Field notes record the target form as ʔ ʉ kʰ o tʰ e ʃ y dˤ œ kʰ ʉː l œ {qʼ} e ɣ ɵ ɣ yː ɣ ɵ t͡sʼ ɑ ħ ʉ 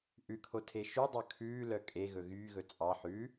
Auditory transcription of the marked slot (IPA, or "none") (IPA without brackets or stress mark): kʼ